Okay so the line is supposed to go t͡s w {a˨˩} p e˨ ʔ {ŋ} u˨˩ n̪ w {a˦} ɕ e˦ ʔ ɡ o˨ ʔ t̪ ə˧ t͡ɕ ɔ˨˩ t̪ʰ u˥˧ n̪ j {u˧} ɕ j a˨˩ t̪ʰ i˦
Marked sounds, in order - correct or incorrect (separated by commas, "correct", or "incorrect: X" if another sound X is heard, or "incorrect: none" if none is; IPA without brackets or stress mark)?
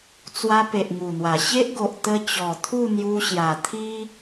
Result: incorrect: a˧, correct, incorrect: a˨˩, correct